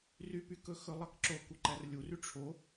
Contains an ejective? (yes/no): no